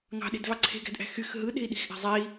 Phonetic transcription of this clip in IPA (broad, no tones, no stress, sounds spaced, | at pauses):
ŋ ɑ̤ ɗ e̤ d v ɑ ǀʰ e̤ ɡ æ̤ d ʔ æ̤ x y x ɦ ɯ ɗ e̤ i̯ ɗ i̤ x ʔ æ̤ zˤ e i̯